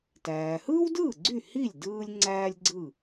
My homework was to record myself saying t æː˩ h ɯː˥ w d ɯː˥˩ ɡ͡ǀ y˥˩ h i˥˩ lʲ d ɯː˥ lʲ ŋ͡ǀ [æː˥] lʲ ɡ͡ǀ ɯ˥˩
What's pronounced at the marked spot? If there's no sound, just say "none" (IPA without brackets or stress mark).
æː˥